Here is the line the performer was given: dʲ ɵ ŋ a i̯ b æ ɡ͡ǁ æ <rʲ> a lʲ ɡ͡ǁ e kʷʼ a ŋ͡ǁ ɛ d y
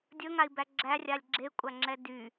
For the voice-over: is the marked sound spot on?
yes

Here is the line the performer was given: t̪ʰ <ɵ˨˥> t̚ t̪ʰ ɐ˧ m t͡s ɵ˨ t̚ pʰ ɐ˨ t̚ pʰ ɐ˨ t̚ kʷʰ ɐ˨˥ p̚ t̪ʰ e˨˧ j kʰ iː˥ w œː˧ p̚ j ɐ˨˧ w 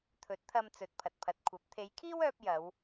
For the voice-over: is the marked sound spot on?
yes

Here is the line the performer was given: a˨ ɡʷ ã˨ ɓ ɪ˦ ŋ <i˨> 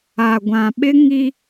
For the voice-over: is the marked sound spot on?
no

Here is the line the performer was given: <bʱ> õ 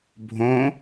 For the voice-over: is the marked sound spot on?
yes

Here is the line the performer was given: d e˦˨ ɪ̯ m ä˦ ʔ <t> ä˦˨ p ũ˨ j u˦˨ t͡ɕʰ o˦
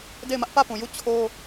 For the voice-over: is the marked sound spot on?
no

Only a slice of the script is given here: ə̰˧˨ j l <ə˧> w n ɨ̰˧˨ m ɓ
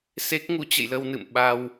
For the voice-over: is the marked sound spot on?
yes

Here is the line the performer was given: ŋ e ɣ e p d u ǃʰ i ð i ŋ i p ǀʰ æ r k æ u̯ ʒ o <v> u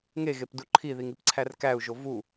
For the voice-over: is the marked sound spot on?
yes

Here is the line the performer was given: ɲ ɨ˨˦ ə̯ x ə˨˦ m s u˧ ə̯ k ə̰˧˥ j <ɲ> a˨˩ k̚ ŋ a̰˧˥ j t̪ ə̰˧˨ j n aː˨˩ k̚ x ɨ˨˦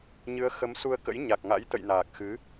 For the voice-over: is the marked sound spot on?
yes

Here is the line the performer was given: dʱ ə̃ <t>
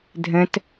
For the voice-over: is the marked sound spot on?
yes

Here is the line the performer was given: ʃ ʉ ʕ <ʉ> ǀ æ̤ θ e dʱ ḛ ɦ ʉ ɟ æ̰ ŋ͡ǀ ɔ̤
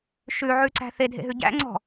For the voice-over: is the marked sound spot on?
yes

